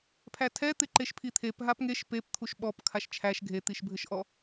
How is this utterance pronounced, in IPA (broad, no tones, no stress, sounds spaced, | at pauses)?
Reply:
pʰ æ tʰ ɛ t̪ ɪ ǃ e ʃ pʰ i t̪ʰ e p ɦ a p ŋ e ʃ p e p t̪ʰ u ʃ ɓ ɔ p kʰ a ʃ t͡ʃʰ æ ʃ ɡʱ e t̪ i ʃ bʱ ɘ ʃ ʔ ɔ